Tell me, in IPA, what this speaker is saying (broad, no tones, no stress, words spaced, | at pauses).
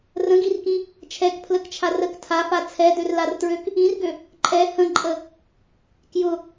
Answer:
rə̃ɡirkĩ | t͡ʃʰɛkpʰləkt͡ʃʰa rək tʰafa t͡sʰɛdørlartɹøk | ĩrɡø | ǃʼɛ hə̃ǃʼə | kjʊ